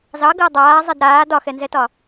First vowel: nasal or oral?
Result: oral